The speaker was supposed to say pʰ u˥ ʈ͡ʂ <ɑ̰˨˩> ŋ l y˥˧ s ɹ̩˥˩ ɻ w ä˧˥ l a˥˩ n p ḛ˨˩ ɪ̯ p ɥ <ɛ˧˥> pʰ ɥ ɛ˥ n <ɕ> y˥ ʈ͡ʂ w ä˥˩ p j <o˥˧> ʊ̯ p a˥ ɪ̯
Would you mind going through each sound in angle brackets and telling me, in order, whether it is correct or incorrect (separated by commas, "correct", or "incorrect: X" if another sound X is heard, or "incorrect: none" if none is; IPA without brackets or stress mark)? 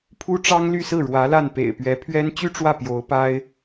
incorrect: ɑ˥, correct, incorrect: t͡ɕ, incorrect: o˧˥